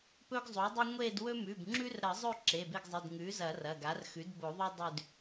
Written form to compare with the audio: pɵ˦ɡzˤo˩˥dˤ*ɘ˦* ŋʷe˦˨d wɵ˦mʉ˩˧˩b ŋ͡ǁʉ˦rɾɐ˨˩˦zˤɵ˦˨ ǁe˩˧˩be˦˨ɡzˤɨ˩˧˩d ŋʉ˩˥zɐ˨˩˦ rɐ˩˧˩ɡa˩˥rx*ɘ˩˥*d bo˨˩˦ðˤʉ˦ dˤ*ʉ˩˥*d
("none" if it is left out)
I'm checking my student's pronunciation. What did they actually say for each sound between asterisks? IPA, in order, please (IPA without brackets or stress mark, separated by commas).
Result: ʉ˦, ʉ˩˥, ʉ˦˨